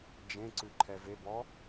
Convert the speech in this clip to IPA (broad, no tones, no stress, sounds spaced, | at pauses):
d͡ʒ ẽ ǀ ʉ ǃʰ ɛ v e b ɔ